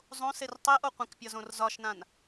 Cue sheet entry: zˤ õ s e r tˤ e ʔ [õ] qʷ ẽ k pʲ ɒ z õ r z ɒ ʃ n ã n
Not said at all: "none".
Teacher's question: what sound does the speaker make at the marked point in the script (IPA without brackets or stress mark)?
o